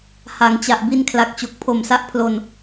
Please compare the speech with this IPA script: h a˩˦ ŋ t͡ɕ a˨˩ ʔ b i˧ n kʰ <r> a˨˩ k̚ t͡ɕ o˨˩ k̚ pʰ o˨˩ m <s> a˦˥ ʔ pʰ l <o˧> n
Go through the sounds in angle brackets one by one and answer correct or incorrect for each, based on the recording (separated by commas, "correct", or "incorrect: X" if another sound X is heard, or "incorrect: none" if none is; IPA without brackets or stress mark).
incorrect: l, correct, correct